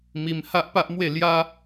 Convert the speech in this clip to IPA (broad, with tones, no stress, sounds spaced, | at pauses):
m i˧ m h a˦ ʔ p a˦ ʔ m w e˥˧ l j a˦